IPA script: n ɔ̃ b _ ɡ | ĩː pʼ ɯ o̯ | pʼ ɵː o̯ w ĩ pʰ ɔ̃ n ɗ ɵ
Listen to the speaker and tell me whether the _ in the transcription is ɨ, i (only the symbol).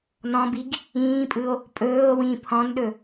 i